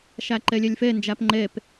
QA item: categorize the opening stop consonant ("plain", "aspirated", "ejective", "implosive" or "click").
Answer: click